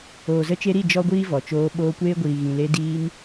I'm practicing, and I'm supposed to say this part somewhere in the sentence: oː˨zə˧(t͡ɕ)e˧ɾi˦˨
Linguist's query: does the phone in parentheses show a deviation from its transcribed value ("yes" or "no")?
yes